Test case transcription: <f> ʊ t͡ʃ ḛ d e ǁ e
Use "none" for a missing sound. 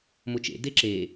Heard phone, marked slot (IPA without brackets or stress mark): m